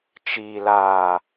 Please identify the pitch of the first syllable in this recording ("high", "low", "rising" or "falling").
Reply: low